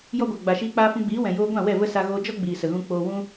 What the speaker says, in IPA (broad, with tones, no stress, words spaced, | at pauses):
jɔ˧ɡʷa˨ ɡ͡ba˨ ʃiː˧k͡paː˧fũ˧ɡ͡biː˨˦ wɛ̃˨joː˧ ɡʷã˦˨wɛ˦˨ və˦ sa˧ɣoː˧ d͡ʒɔ˦ɡ͡biː˨ sə˨ɣũ˧ k͡poː˧wũ˦